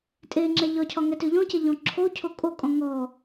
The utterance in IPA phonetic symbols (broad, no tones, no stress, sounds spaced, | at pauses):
tʼ e ŋ͡ǁ ɛ ʎ ɒ cʰ ɒ ŋ ɛ t ø ʎ ɔ̃ c ɛ ʎ ɔ̃ ǁʰ o cʰ o kʼ o kʼ ɔ̃ ŋ ɔ